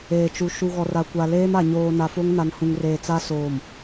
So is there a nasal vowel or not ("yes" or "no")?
yes